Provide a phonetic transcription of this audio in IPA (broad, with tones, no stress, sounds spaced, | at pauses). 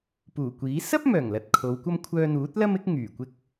p uː˨˩ kʷ iː˨˥ s ɐ˥ p̚ m œː˨˩ ŋ l ɐ˨ t̚ kʰ o˨˧ w kʷ ɐ˥ m kʷʰ œː˧ n̪ uː˨˥ t̚ l ɐ˥ m ɪ˥ k̚ ŋ yː˨˩ kʷ ɪ˥ k̚